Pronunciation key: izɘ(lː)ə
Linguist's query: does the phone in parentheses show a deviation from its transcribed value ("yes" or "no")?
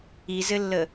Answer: no